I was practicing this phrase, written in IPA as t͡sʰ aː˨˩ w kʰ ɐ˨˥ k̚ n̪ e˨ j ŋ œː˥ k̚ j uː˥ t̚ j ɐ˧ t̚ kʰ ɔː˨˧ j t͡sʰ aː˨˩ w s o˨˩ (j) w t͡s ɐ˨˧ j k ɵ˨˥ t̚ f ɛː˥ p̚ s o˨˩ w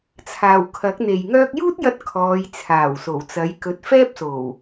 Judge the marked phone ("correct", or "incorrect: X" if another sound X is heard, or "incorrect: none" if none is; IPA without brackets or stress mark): incorrect: none